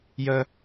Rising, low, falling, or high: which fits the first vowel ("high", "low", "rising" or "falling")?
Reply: high